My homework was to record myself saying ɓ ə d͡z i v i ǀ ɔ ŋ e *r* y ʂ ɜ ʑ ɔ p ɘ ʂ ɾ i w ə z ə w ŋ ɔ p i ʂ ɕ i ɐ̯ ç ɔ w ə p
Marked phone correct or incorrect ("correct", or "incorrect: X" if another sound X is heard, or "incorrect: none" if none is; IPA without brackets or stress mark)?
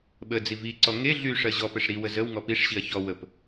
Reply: incorrect: ɮ